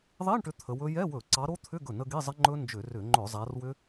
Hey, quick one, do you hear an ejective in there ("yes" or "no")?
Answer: no